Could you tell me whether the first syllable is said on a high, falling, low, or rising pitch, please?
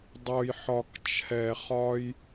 low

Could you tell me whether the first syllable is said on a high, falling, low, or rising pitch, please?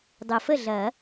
low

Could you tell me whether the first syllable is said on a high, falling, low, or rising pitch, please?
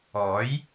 rising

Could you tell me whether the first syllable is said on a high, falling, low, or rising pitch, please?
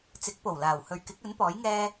rising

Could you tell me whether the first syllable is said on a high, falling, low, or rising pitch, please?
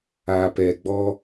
low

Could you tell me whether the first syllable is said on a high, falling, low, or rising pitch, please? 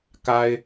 low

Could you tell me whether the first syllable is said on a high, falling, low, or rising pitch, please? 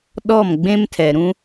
falling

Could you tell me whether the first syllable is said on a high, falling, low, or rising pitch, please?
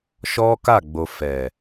high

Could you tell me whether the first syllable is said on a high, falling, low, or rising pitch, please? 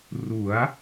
rising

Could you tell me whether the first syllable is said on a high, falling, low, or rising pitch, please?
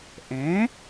rising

